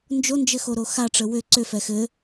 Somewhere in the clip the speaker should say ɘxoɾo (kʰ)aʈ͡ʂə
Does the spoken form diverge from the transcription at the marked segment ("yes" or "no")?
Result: yes